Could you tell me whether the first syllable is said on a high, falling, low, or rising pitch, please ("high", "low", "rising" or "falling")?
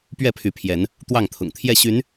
falling